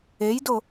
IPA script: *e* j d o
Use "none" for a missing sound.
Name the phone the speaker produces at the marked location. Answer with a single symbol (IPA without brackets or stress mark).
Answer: e